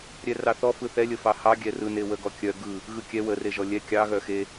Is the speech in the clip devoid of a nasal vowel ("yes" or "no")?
yes